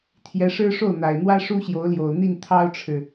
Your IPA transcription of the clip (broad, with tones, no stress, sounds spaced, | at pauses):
t̪ʰ j ɛ˧˥ ʂ ɻ̩˥ ʂ o˥˩ ʊ̯ n̪ a˨˩ ɪ̯ n̪ w ä˥ ʂ u˥ ɕ j o˧˥ ʊ̯ l j o˨˩ ʊ̯ n̪ i˥˩ n t̪ʰ ɑ˥ ʊ̯ ʈ͡ʂʰ ɻ̩˨